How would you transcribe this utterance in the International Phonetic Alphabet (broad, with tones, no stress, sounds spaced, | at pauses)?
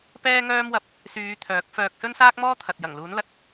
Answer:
p ɛː˥ ŋ œː˥ m w ɐ˧ p̚ | s yː˨˧ t̪ʰ œː˨˥ k̚ f œː˧ k̚ s ɵ˥ n s aː˥ k̚ m ɔː˥ t̪ʰ ɐ˨ t̚ j ɐ˨˩ ŋ l uː˨˥ n l ɐ˨ t̚